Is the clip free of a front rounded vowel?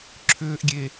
no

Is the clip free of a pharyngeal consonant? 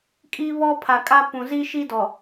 yes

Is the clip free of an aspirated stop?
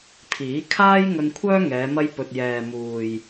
no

